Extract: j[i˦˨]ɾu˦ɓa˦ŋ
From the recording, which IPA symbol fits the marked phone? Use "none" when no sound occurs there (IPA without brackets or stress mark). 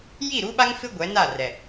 i˦˨